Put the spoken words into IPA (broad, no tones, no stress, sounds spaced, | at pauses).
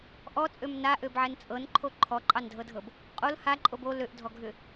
ʔ ɔ t͡sʼ ø m n a ʔ ø b ʕ ɛ n t͡sʼ ɤ n ǃʰ o ǃʰ ɔ ǃʼ ɑ n dʱ ɤ dʱ ɤ b | qʼ o l h a ǃʼ o b o l ø ʔ dʱ ɔ ɡʱ ʏ